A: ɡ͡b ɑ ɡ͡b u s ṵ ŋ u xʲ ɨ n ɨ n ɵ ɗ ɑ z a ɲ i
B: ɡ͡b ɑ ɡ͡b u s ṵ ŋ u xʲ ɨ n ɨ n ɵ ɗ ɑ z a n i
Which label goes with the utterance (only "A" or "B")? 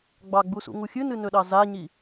A